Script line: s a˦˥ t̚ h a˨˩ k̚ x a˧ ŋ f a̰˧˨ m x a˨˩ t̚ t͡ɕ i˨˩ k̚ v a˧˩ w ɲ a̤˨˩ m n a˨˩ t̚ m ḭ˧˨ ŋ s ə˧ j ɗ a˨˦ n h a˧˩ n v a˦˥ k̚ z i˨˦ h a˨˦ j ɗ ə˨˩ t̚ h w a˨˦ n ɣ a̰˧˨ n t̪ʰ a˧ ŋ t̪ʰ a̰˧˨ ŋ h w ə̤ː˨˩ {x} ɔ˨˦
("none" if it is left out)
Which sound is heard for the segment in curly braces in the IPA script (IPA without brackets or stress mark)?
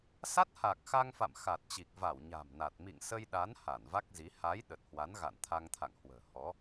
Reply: h